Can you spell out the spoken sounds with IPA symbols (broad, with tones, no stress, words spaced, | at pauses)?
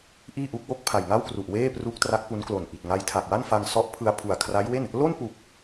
ʔiː˥˩ʔu˦˥k̚ wo˥˩k̚pʰa˨˩jŋa˥˩wkru˨˩ʔ weː˥˩pru˦˥k̚ tra˦˥k̚pu˦˥nklo˨˩n ʔi˨˩t̚ ŋa˧jtʰa˨˩k̚wa˥˩nfa˧ŋ sɔ˦˥ʔ pʰɯ˧a̯pʰu˨˩a̯kʰra˦˥jwe˥˩n | lo˥˩npu˨˩k̚